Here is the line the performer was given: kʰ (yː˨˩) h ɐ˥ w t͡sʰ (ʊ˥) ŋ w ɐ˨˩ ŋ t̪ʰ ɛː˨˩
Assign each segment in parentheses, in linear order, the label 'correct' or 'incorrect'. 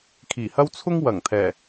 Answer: incorrect, correct

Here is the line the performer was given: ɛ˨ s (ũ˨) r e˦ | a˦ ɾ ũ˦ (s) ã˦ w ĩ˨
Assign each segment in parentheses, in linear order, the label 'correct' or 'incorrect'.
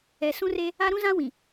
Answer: incorrect, incorrect

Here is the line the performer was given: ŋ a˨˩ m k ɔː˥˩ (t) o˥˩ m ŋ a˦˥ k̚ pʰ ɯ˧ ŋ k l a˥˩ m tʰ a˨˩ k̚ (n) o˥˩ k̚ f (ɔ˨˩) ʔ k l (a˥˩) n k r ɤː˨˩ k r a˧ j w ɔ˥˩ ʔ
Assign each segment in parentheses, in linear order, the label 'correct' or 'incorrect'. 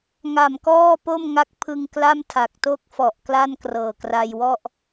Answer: incorrect, incorrect, correct, correct

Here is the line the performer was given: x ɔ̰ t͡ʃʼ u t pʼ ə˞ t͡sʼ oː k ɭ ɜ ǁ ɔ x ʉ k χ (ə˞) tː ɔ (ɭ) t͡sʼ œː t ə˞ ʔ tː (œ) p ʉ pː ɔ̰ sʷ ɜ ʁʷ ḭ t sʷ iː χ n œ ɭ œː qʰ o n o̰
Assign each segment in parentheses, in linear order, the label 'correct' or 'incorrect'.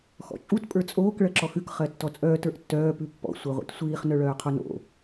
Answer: incorrect, incorrect, incorrect

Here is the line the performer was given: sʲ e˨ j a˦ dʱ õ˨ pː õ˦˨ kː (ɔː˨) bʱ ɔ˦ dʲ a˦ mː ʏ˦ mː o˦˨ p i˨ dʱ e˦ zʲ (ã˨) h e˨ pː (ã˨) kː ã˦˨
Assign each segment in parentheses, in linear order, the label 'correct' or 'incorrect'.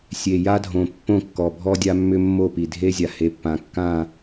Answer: incorrect, incorrect, correct

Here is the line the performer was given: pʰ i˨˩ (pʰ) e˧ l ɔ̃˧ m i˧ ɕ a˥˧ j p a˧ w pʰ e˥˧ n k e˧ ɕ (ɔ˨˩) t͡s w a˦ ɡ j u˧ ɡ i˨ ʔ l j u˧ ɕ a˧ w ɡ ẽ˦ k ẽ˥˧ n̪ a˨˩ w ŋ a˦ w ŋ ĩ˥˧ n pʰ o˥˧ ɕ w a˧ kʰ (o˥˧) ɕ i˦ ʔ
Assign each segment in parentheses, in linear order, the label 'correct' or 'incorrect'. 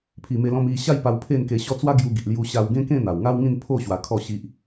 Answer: incorrect, incorrect, incorrect

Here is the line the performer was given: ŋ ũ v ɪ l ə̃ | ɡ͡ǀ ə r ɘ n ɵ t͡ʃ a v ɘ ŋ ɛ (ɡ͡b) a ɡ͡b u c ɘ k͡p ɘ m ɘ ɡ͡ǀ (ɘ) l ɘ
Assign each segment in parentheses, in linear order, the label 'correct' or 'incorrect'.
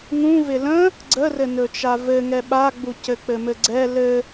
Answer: incorrect, incorrect

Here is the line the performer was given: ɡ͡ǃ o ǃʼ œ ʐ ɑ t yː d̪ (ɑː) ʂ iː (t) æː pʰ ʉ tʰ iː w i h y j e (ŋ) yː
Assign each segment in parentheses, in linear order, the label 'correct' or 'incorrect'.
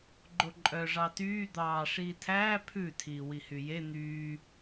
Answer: correct, incorrect, incorrect

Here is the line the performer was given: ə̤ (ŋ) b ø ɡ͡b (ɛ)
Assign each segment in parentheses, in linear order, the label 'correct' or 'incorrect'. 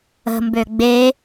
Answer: incorrect, incorrect

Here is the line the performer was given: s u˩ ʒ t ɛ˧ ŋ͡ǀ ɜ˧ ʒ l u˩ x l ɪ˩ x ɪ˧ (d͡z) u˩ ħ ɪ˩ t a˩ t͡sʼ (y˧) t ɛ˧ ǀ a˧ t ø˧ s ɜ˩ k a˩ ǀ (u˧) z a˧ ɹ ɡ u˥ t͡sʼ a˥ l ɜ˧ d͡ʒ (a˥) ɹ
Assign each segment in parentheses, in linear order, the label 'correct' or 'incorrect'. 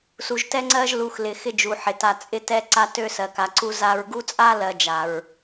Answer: incorrect, incorrect, correct, incorrect

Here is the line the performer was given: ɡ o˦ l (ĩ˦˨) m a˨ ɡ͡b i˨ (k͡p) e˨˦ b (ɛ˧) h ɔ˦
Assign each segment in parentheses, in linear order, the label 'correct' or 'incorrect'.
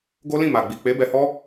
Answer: correct, correct, correct

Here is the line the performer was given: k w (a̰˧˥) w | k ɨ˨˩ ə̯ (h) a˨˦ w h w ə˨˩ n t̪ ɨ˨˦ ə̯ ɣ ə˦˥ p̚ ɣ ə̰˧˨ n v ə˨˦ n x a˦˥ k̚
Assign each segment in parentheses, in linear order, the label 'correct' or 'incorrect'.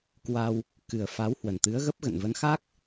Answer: incorrect, incorrect

